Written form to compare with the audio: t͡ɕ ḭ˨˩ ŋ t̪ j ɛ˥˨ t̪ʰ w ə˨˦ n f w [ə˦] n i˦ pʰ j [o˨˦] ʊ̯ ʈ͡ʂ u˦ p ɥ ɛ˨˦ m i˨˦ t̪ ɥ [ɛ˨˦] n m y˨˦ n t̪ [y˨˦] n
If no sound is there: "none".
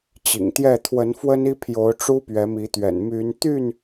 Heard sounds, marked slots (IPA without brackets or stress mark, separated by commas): ə˦, o˨˦, ɛ̰˨˩, y˥˨